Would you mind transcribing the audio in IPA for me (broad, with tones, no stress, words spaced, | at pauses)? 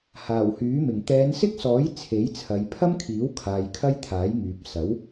haː˨˩whyː˨˥mɪ˨˩ŋ t̪ɛː˨˧nsɪ˥k̚sɔː˨˥j t͡sʰe˨˥jt͡sʰɐ˨˧j pʰɐ˥mkʰiː˨˥wkʰaː˨j kʰɐ˥jt̪ʰaː˨˥jŋyː˨p̚ sɐ˨˥w